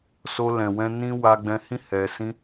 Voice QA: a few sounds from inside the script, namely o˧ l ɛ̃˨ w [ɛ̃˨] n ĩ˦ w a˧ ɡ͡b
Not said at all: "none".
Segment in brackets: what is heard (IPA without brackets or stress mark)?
ɛ̃˧